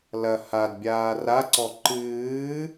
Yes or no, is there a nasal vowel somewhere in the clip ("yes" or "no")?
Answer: no